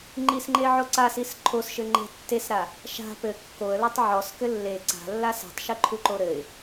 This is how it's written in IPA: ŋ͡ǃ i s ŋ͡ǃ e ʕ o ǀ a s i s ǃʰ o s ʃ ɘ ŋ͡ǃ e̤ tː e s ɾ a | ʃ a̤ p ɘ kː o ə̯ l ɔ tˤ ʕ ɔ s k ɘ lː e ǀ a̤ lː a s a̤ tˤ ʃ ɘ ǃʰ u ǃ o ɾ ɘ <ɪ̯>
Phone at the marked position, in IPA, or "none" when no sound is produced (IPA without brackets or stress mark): ɪ̯